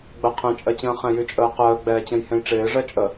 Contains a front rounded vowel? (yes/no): yes